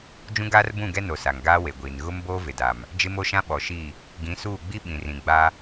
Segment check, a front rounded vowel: absent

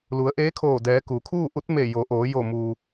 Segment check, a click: absent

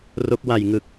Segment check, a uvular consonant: absent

